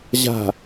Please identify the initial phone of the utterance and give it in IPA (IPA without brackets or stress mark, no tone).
ʑ